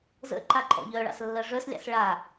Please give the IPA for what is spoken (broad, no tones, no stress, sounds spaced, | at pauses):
z ə̰ ǃ a ǃʼ ɔ̰ ʎ œ ɭ ɑ̰ s lː ɜ ʐ œ s lʲ ɑ̰ s ɭ a